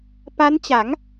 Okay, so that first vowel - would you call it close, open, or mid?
open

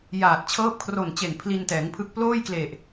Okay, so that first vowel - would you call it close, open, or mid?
open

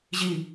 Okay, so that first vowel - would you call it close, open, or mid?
close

